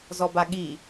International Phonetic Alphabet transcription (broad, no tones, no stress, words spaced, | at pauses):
zɔbaɠi